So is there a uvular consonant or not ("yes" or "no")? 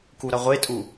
yes